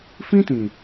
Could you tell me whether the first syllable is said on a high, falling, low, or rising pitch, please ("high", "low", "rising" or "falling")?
high